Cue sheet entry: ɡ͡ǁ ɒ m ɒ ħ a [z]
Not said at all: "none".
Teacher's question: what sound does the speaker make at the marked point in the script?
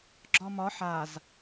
z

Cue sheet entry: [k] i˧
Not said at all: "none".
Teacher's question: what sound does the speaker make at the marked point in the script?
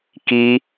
k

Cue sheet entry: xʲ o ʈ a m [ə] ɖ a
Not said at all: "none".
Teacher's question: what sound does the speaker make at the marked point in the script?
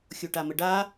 ə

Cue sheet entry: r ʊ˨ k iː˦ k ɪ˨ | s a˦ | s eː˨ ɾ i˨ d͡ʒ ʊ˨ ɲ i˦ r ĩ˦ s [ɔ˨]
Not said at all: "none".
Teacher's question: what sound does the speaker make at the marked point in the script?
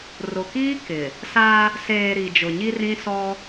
ɔ˦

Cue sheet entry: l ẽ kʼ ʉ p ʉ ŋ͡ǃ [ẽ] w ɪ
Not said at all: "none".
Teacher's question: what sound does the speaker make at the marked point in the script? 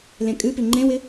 ẽ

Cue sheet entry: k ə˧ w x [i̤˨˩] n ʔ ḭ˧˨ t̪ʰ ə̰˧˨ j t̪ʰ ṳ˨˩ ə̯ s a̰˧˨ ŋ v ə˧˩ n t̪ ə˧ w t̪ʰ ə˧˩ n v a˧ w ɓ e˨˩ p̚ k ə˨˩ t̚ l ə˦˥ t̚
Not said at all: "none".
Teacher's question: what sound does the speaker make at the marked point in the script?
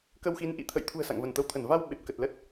i˨˦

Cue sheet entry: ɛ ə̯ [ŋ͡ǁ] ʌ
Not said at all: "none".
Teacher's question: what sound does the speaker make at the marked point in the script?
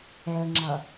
ŋ͡ǁ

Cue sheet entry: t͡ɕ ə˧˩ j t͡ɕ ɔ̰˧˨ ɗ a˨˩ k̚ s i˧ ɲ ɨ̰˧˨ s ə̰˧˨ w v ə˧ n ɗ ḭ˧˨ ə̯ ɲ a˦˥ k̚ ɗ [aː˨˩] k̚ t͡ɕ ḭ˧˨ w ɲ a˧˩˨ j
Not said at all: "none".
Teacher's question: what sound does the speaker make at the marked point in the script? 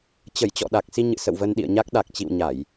a˨˩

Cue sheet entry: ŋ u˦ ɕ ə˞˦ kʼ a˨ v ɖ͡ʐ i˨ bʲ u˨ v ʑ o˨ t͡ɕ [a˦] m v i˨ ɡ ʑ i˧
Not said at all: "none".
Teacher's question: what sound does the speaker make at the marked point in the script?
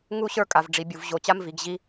a˦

